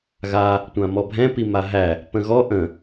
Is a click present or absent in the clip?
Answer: absent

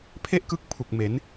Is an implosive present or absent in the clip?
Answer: absent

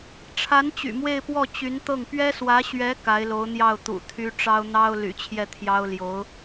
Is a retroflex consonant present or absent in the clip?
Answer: present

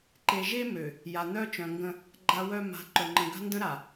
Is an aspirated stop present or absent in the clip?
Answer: absent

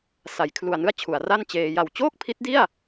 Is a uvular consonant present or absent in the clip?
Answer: absent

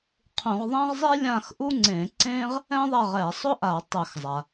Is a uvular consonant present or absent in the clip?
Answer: present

